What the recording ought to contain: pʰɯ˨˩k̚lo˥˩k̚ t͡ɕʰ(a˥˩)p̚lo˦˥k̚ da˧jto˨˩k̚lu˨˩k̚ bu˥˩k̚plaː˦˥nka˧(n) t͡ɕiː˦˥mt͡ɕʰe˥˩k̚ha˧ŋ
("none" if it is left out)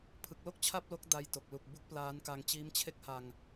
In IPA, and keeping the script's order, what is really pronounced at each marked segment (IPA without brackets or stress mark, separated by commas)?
a˥˩, ŋ